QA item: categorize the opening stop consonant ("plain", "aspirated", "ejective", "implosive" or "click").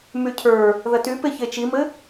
aspirated